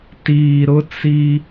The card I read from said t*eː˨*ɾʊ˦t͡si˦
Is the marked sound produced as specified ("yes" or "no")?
no